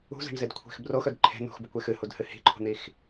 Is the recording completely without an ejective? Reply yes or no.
yes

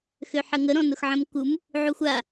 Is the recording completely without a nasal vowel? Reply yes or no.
no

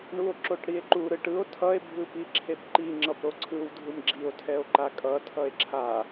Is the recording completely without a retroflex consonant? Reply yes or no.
no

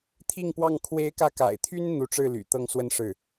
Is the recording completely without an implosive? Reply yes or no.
yes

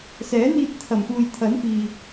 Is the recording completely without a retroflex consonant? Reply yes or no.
yes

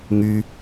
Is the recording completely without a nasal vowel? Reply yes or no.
yes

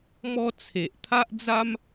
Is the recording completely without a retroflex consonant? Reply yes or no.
yes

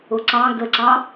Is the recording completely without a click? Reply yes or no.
no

